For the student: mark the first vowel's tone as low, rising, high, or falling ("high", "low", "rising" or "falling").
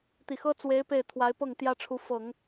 low